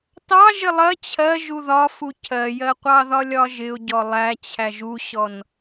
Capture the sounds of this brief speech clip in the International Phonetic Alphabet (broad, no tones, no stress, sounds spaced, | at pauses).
t ɑ ʒ ɪ lˠ ɜ t͡ɕʰ ɜ ʒ u ð ɒ f u cʰ ɜ j ɜ qʷ ɑ ð ɒ lʲ ɒ ʒ ɪ ʊ̯ ɟ ɔ lˠ æ t͡ɕʰ æ ʒ u ɕ ɔ n